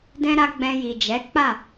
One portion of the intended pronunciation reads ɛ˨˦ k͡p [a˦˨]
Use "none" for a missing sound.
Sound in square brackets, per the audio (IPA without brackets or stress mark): a˦˨